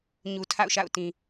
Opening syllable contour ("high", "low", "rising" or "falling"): low